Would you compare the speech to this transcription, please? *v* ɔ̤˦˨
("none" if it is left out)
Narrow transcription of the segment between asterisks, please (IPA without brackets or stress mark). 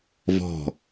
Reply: v